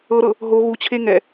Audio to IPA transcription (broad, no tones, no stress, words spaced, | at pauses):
ɤɾɤ | ɦo ɣut͡ɕʰe ŋɛ